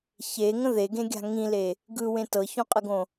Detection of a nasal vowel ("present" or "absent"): present